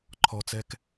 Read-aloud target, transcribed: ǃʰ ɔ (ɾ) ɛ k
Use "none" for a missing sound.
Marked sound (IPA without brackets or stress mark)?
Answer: t͡s